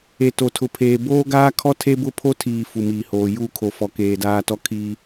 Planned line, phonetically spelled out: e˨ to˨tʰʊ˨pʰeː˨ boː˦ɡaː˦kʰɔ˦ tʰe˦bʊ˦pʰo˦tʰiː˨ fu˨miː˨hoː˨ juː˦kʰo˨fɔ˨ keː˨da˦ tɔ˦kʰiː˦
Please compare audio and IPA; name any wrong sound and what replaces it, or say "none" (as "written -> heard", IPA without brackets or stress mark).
a˦ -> aː˦